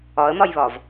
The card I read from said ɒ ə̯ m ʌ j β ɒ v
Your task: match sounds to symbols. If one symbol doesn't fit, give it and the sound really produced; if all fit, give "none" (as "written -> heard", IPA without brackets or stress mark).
ʌ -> ɒ